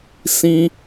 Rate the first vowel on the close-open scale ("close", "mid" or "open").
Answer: close